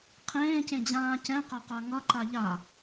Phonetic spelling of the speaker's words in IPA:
qʰ ẽː c ẽ d͡ʑ ãː c ɛ̃ q a q a ŋ ʌ ǃ a ʎ a

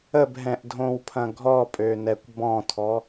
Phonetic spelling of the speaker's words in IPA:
ə b ɦ ɛ̃ ʔ dʱ õ w pʰ ɐ̃ ɡʱ ɔ pʼ ø n ɛ kʷ b ɔ̃ tʰ ɔ

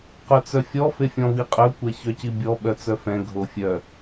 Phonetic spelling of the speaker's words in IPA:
q œ t͡s œ fʲ ɔ f e fʲ ɔ̃ v i qʼ œ kʷ ɛ ç œ c i bʲ ɔ ɓ œ t͡s œ f ɛ̃ ɡʱ o fʲ œ

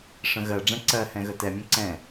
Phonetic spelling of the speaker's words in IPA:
ʂ ə̃ ɣ ɜ ɖ͡ʐ ɛ̃ ǀ ɜ h ɛ̃ ɣ ə t ɛ mʲ ə̃ ǀ ɛ̃

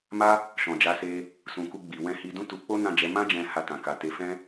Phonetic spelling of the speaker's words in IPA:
m a˦ | ʃ ɔ̃˨ d͡ʒ a˨˦ s e˧ | s ũ˨ k u˧ ɡ͡b i˨ w ɛ̃˧ h i˧ d ũ˦ t u˧ k͡p o˦ n ã˦˨ d͡ʒ ɛ˨˦ m ã˦ d͡ʒ ɛ̃˧ h a˧ t ã˨ k a˨ t e˨˦ f ɛ̃˦

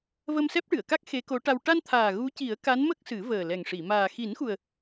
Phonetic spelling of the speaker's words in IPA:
v ə˧ m s ɛ˦˥ p̚ ʈ ɨ˨˩˨ ə̯ k a˦˥ k̚ x e˧˥ k o˧˥ ʈ a˧ w ʈ a˧ n t̪ʰ aː˨˩ ɣ u˧˥ c i˨˩˦ ə̯ k a˧˥ n m ə˦˥ k̚ s ɨ˨˩˦ v əː˨˩ l ɛ˨˩ ŋ ʂ i˨˩˨ m aː˨˩ x i˨˩˦ n x u˨˩ ə̯

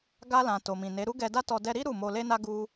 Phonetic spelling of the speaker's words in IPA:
ɡ a˧ l ã˨ t o˨ m ĩ˨ n e˨˦ ɾ u˦ ɡ ɛ˧ d a˦ t ɔ˧ d ɛ˧ ɾ i˦ ɾ u˦˨ m o˧ l e˦ n a˦ ɡ u˧

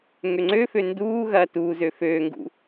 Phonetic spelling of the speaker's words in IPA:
ŋ ø ŋ͡ǀ ø f ø n d uː ɣ ɐː t uː z ø f øː ŋ ɡ ṵ

